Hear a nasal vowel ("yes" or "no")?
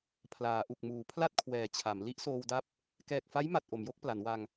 no